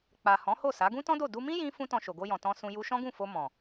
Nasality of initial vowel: oral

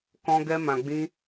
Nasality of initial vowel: nasal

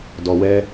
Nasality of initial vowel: oral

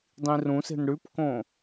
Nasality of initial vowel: nasal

